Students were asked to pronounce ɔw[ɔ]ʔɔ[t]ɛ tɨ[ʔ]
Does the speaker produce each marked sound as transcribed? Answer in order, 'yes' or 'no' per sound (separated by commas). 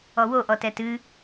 no, yes, no